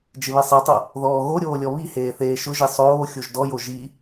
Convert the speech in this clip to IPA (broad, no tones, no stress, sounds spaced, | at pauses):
d͡ʒ ɪ β e sˤ i tˤ o | ð ɔː ɣ o ɾʲ oː lʲ ɔ β i h eː θ eː ʃ ʊ ʒ i sˤ oː xʲ o ʒ d ɔ j o ʒ i